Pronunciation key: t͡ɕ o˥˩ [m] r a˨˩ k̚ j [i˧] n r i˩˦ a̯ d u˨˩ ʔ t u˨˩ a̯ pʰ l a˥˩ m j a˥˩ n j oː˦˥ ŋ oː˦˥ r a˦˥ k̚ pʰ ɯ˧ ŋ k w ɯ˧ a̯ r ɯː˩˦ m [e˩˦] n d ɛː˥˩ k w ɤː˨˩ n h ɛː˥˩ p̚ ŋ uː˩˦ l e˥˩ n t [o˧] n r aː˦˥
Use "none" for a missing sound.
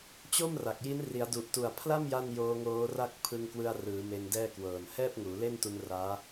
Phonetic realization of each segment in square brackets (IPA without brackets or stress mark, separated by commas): m, i˦˥, e˧, u˧